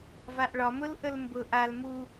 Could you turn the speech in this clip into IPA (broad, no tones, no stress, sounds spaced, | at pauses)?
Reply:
v a ʔ ɭ ɒ m ʊ l ʔ ə l m b ʊ ʔ a l m u